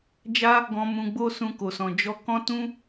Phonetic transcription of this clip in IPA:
d͡ʒa˦ | ɡɔ̃˧ mũ˧ɡ͡bo˦ sũ˧ko˨sɔ̃˨ d͡ʒɔ˧kɔ̃˦tũ˦

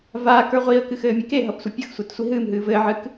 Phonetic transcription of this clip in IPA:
vaːkə˞ ʁʷiə̯kɨxɘːmʲe keɦʌpsʷɘ pʲʌxsʷetsʷi ɦɨːmɦɨː vɘːʕɨk

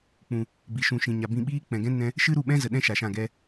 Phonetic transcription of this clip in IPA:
k͡pũ˨ | bi˨ʃũ˨ʃĩ˨ ɲa˨bĩ˧ɓiː˦ k͡pɛ̃˨ɡɛ̃˦ nɛ̃˦ | ʃɨ˦ɾu˦˨ɓɛ̃˦zə˨ ɗɛ̃˦ ʃa˨ʃã˦˨ ɡɛ˧

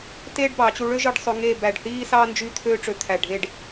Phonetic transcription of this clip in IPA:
teː˥ɖbɑ˩˧t͡ɕu˧ ɭø˥ʒɯ˧ɖsˤø˧ ŋeː˥˧ bæ˧˩ɖθiː˥sɑ˥ nd͡ʒy˥˧ t̪ʰøː˥ʈ͡ʂø˧ t̪ʰæ˧˩ɖʱe˥˧ɖ

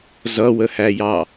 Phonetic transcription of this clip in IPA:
zʌwəhæjɑ

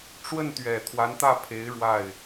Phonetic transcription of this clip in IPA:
ʈ͡ʂwə˥˩nt̪ɥɛ˨˩ t̪ʰwa˧˥nt̪ä˥˩pʰe˧˥ɪ̯ ɻwa˥˩ɪ̯

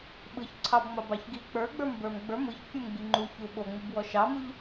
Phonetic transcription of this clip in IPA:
ɓɯç ǀʰɑbŋ͡mɑbɑç ɡi k͡pə˞ɡ͡bə˞mbə˞m ɡ͡bə˞ mɯçfʲumɡ͡bi ŋ͡ǃuçu ɓoŋ͡mɯbwɔ ʃɑmuʎ

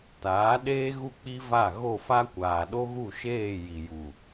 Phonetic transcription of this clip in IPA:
taː˨˦ ɗeː˦ɣu˦˨k͡pi˦va˦˨ ɣo˦˨fa˦kʷaː˨ ɗo˦ɣu˦˨ʃeː˦˨ ji˨ju˨

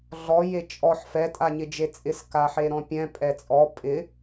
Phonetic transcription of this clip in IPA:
ɮɔ jet͡ʃʼɔħ fɛ tʼaɲɪd͡ʒet͡sʼɪs kaħeɾɔ̃pʲɛ̃ pʼɛt͡sʼɔ pʼɪ

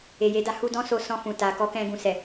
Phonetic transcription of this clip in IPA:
e˨je˨˦da˧ hu˧dɔ̃˦so˧ sɔ̃˧fũ˨ ta˨ kɔ˨˦kɛ̃˧ ɡũ˨sɛ˨

